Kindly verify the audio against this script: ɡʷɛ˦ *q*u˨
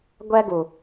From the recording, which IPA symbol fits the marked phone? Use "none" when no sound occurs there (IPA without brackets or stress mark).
ɡ